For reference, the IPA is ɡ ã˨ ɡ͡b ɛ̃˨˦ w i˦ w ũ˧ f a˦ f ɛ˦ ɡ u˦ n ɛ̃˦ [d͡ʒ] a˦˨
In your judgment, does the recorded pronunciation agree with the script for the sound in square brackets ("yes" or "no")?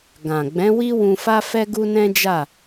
yes